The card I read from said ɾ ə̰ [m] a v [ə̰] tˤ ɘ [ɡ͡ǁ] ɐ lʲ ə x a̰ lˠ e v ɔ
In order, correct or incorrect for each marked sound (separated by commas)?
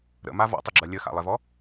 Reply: correct, incorrect, correct